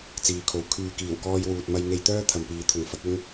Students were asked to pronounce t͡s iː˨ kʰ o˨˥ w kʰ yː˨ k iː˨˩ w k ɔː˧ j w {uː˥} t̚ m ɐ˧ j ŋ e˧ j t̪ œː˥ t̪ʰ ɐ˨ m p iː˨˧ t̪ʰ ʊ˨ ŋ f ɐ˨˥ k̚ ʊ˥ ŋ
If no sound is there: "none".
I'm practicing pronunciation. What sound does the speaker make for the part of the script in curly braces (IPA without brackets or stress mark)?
uː˨